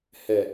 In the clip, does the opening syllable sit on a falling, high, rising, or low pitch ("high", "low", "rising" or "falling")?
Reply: low